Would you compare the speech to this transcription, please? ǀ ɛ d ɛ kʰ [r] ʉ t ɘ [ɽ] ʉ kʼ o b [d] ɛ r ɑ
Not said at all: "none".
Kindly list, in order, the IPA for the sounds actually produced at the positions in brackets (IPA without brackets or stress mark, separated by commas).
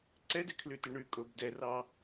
l, ɳ, d